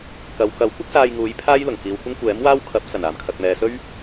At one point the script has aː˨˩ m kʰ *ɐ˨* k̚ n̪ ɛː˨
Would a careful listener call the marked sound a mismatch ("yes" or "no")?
no